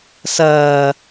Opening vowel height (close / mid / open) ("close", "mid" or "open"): open